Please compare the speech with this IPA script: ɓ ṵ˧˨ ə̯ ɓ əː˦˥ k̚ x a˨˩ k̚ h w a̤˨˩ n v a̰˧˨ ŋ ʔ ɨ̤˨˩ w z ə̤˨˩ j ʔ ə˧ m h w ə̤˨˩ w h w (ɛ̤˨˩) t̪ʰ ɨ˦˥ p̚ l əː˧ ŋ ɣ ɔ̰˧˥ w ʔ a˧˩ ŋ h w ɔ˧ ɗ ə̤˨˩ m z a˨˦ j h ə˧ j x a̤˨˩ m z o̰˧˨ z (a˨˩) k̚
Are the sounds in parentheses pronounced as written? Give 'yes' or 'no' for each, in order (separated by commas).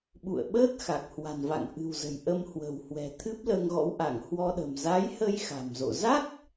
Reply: yes, no